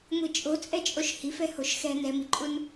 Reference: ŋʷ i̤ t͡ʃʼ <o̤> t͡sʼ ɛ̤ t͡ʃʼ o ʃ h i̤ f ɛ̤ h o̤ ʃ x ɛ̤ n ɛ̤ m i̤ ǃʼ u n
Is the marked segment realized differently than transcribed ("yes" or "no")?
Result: no